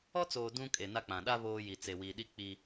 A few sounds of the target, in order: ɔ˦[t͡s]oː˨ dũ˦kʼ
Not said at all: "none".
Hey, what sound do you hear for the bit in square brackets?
t͡s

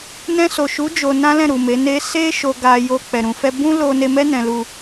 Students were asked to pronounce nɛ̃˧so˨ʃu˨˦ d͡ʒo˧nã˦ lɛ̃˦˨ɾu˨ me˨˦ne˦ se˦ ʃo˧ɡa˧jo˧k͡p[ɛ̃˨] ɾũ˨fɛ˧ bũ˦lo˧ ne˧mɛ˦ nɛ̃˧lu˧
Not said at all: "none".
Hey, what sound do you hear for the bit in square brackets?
ɛ˨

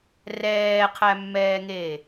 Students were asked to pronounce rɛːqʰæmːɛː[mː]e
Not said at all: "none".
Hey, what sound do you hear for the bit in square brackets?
ŋ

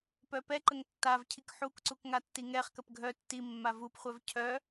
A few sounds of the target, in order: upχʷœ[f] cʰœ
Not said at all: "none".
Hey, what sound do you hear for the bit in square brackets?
v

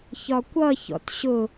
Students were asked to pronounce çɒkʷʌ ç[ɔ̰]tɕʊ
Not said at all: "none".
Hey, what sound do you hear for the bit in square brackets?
ɔ̰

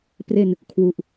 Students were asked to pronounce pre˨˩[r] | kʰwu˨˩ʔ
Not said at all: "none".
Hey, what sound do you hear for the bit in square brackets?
n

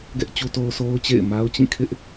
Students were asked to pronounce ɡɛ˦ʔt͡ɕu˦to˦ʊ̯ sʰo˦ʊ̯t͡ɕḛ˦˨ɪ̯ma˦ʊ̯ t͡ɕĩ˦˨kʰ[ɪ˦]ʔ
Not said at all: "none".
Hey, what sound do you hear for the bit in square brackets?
ɪ˦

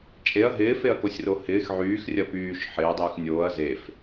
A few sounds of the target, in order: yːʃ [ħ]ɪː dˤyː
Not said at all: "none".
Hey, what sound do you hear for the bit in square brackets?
ħ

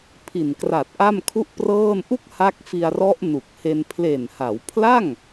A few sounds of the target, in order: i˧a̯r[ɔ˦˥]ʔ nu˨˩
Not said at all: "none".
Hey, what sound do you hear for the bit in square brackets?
ɔ˦˥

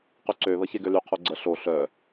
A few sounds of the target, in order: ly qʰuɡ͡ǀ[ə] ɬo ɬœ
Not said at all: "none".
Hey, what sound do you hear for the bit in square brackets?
ə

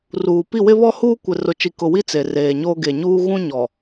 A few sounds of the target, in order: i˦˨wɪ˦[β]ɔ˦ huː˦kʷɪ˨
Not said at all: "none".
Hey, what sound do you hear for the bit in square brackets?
β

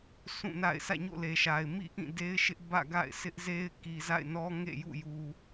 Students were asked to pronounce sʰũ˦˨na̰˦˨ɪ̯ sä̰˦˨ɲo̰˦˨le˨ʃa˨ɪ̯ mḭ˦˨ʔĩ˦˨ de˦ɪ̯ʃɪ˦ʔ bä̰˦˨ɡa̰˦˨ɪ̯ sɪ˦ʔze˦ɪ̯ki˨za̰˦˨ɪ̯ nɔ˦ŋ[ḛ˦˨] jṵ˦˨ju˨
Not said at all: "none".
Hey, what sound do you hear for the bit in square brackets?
ḛ˦˨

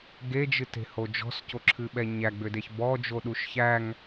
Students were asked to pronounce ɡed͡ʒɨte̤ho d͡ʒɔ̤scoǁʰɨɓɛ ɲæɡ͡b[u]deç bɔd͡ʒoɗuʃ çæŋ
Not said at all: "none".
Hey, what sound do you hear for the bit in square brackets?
ʏ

